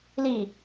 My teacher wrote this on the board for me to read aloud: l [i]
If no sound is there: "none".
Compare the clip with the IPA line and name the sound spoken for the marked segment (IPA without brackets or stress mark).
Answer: i